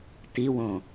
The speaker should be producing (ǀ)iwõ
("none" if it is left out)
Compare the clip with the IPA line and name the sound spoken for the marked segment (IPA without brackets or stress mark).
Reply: t